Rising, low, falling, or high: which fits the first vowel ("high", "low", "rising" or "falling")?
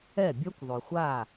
falling